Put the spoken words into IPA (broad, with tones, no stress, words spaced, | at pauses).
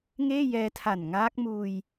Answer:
ŋeː˥˩ jɛː˧tʰa˨˩n ŋaː˦˥k̚muː˧j